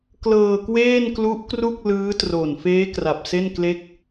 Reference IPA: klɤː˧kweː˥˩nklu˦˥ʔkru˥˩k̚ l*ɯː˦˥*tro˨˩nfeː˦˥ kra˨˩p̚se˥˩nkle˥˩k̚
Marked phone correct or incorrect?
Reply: correct